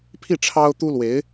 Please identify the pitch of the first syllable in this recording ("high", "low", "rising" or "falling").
falling